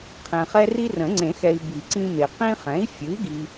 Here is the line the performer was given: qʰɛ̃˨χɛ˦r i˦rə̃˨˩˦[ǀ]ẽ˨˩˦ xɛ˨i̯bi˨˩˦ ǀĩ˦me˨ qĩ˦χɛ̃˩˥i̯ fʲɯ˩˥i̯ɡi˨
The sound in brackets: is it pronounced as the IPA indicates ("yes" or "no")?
no